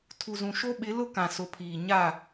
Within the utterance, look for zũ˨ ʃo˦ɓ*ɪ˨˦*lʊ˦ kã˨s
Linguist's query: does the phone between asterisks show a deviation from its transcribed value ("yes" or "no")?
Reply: no